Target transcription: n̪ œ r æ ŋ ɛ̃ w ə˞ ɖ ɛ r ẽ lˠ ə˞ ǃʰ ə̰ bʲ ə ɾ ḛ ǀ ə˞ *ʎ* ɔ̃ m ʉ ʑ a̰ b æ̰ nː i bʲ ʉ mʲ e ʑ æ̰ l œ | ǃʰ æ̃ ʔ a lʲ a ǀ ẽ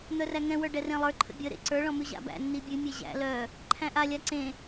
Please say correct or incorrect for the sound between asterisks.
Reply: incorrect